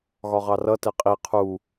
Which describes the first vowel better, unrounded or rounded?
rounded